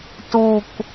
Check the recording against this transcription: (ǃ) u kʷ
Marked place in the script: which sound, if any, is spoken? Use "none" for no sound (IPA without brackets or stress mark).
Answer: t